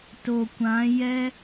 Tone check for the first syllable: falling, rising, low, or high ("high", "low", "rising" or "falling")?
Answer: low